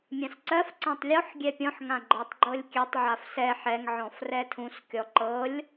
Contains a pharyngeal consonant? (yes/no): yes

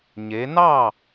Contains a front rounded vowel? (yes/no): no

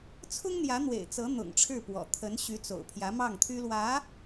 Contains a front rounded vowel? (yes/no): yes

